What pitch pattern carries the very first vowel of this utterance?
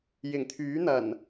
low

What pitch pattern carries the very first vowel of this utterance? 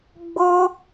high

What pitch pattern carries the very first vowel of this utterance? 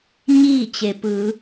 falling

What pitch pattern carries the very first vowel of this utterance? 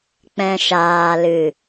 low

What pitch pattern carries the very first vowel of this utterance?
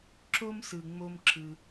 high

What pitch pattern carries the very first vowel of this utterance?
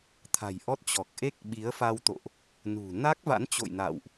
low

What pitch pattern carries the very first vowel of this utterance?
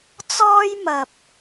high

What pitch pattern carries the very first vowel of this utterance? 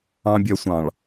low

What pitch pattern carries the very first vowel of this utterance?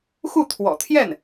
falling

